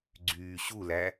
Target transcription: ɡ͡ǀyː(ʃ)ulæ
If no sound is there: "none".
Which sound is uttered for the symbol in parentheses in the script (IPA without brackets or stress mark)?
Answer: ɕ